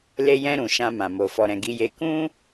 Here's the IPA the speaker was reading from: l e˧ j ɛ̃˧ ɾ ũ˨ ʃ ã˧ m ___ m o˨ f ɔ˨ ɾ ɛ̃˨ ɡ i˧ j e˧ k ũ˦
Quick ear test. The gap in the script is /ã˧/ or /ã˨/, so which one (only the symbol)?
ã˨